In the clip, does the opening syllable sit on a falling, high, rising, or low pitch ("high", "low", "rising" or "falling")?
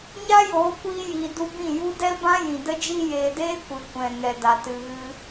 high